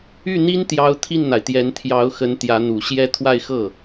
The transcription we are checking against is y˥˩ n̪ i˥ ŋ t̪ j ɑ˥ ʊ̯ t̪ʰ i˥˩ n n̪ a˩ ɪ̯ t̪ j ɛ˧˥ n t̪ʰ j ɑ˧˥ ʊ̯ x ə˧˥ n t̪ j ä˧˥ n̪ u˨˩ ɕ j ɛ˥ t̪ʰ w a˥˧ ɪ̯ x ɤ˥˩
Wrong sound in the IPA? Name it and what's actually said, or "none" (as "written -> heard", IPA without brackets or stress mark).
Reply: ŋ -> n